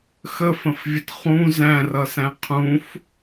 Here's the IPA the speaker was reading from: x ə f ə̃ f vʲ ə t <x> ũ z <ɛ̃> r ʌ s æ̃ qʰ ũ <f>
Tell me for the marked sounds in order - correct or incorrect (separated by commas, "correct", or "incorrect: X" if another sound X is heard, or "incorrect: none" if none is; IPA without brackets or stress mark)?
incorrect: χ, incorrect: æ̃, correct